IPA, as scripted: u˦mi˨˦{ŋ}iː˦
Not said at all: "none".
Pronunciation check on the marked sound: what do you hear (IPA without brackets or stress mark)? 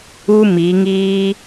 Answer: ŋ